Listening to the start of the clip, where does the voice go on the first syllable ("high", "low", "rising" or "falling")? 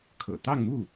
low